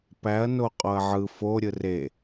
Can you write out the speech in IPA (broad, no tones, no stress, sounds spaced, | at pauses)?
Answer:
p æ ɐ̯ n o qʼ o ɐ̯ ʕ ɯ f o ɾʲ ɯ r e